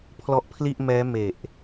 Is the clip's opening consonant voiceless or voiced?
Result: voiceless